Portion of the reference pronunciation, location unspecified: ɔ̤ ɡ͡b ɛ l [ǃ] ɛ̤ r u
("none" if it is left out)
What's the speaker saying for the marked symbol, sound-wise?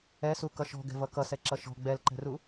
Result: ǃ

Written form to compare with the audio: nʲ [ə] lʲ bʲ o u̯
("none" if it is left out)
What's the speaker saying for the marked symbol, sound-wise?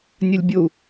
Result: ɐ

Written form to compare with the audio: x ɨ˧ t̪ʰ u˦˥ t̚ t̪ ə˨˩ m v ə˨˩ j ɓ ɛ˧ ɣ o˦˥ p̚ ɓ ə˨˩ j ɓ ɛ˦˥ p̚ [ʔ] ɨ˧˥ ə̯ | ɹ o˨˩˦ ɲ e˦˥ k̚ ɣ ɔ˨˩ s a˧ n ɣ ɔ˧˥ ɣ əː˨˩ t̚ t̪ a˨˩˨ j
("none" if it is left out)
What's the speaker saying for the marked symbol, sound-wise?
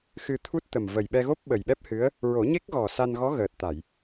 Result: h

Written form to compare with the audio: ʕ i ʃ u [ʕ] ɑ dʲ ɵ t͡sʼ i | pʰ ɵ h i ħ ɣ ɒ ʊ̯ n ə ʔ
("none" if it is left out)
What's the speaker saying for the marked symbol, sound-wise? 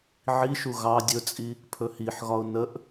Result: ɣ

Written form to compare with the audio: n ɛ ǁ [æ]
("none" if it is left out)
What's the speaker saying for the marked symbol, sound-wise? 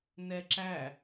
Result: æ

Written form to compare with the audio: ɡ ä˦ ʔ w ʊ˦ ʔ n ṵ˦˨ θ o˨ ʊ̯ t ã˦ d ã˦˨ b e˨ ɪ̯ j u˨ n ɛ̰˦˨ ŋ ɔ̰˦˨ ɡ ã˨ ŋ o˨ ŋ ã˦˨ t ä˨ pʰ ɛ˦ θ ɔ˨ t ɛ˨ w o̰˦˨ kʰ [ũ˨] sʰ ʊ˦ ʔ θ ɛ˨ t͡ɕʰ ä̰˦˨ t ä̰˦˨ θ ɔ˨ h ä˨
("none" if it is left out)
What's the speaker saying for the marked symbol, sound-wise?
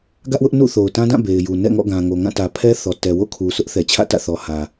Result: u˨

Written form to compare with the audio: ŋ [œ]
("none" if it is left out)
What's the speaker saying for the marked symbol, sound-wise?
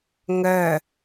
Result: œ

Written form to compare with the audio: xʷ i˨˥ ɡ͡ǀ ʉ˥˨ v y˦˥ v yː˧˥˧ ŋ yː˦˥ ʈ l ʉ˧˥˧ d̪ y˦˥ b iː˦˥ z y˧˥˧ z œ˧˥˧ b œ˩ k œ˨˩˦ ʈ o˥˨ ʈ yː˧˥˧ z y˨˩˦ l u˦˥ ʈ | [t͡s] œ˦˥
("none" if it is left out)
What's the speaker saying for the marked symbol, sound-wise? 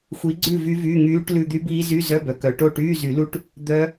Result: d̪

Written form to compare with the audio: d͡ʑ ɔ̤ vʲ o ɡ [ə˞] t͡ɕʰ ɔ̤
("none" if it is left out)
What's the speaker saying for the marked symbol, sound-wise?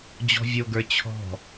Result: ə˞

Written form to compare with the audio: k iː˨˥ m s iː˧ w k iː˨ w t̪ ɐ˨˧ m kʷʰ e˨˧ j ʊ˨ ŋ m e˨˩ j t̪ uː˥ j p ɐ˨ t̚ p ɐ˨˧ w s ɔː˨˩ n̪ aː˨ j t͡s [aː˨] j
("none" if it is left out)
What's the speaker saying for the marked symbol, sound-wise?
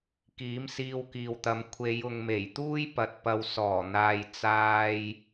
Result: aː˧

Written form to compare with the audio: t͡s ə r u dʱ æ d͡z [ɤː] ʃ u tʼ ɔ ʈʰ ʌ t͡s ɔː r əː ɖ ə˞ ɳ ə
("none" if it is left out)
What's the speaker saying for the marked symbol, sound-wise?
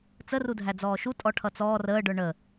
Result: ɔː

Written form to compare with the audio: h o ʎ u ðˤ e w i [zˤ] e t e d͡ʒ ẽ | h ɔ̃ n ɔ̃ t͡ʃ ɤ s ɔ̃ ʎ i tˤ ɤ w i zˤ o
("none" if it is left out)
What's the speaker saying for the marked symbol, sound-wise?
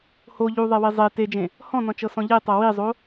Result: zˤ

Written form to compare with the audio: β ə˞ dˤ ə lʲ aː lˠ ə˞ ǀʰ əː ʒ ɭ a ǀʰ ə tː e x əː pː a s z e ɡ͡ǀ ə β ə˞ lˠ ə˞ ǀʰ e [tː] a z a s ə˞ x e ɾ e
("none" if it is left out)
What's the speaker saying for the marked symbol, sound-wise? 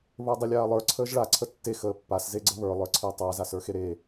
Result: tˤ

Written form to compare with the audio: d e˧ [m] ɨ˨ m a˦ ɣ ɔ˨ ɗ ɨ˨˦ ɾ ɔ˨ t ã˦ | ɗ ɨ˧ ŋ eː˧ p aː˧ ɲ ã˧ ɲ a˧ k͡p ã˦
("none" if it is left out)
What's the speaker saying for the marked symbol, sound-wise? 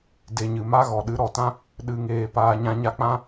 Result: ɲ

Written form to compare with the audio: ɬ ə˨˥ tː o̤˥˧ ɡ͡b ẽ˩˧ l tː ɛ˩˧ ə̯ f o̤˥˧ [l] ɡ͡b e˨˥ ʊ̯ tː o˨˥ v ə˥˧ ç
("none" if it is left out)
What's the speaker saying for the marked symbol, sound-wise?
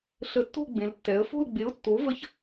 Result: l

